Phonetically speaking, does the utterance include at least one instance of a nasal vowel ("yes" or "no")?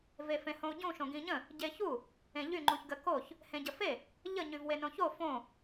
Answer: yes